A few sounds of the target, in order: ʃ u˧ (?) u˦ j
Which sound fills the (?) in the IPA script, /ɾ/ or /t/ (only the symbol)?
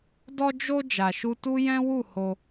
t